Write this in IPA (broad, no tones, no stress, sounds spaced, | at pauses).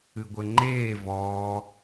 ɨ ɡʷ ɘ ŋ͡ǃ eː v ɔː